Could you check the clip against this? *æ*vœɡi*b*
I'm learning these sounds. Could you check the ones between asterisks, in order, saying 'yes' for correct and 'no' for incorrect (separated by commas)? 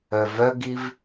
no, no